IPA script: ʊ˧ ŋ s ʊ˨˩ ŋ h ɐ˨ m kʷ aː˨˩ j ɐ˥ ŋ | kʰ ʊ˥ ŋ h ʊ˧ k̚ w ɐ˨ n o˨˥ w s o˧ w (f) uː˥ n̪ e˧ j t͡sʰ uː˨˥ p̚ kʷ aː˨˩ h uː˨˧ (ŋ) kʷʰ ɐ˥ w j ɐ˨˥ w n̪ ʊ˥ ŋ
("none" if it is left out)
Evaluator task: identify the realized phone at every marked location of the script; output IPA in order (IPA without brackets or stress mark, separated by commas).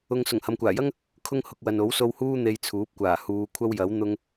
h, none